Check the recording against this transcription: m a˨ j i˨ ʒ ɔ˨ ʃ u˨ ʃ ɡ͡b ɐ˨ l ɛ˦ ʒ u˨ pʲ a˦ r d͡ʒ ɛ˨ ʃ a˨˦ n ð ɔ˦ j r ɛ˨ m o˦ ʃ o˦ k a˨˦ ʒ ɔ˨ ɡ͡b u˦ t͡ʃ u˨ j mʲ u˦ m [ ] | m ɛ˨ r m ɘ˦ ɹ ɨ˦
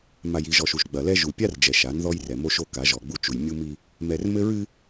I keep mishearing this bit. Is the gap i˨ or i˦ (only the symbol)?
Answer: i˦